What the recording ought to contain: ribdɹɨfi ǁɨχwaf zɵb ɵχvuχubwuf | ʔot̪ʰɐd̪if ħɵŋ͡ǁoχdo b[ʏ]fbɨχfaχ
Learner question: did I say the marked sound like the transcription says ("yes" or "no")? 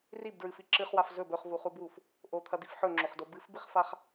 no